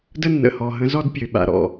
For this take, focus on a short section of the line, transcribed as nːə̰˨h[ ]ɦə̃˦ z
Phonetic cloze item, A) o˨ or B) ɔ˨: B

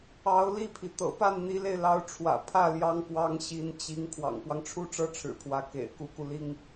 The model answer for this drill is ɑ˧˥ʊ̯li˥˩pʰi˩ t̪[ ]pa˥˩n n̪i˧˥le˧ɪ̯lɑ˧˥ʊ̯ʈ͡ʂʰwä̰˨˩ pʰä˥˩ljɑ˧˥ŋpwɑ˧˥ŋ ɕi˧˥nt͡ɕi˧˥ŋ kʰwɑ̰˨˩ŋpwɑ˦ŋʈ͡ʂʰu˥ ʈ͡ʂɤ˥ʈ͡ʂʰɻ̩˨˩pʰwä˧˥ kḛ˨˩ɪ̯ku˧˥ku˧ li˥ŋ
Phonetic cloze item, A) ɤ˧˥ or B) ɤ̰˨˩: B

